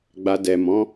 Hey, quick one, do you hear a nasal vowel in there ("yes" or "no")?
yes